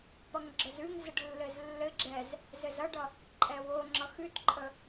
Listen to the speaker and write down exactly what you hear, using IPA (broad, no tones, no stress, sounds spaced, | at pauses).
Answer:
p ʌ ŋ ɡ͡ǁ ə z ʉ ŋ z ɘ ɖ lː ɘ z lː ɘ ɡ͡ǁ ɛ z | z ɘ z ʌ ɖ ʌ | ǃʼ ɛ w o ŋ͡ǁ ʌ x ʉ t ǃʼ ə